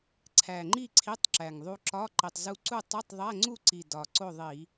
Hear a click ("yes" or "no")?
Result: yes